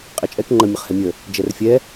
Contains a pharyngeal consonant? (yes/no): no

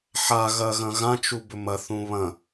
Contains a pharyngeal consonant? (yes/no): yes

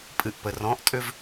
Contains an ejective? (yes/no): yes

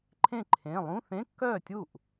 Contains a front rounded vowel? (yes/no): yes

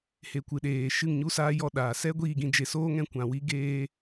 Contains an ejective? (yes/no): no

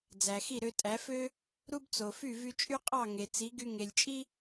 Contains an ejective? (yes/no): yes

